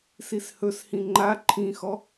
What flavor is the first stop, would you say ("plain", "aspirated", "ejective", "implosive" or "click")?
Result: click